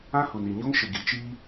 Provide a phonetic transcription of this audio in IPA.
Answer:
ã˦hu˨ni˨ɲo˦ŋ ʃɪ˨ɡi˨t͡ʃiː˦

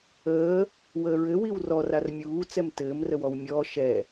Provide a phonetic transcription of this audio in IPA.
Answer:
əː | wəːɹɘ wiwrɔr armʲuː t͡sɛmtɘːm rəwɔwmʲɔː ʃɛ

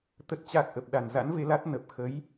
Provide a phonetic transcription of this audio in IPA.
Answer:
t̪ə˨˩t̚t͡ɕa˨˩k̚ ʔə˨˩p̚ɗa˨˩n za̰˧˥nve˨˦ la˦˥t̚ nə˨˩p̚ xə˨˦j

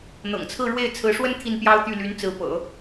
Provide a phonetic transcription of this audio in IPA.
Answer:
n̪ɤ̰˨˩ŋt͡sʰɹ̩˥˧ ɻwe˥˩ɪ̯ t͡sʰɹ̩˧˥ʂwə˥n t̪ʰi˥˩npjɑ˥ʊ̯t̪y˥˩ ly˧˥n t͡sɹ̩˧˥pɤ̰˨˩˦

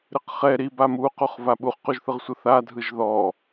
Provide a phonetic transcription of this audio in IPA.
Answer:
ɾɯqχɛ ɾiba muquχva ɓuχquʒθɯʁsʷɯ θa dʱɯʒðɔ

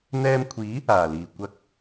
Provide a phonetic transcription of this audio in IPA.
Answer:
n̪ɛː˧mkʷʰiː˨˥ | aː˨˩liː˨˩ kʷɐ˧k̚

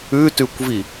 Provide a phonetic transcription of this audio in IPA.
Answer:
ʉtʉkʷvi

